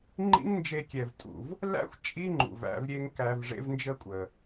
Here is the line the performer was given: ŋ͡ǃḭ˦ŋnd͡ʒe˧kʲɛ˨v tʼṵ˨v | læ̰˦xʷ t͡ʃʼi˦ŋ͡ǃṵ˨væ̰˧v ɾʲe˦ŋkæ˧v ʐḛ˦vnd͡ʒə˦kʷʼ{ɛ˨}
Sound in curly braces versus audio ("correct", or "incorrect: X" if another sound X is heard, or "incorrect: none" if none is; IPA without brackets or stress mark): incorrect: ə˨